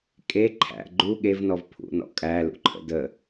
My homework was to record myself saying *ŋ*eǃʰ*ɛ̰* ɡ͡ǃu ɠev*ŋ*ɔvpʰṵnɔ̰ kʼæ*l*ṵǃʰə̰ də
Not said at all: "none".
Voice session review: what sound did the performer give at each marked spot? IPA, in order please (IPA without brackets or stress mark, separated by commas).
kʼ, æ̰, n, l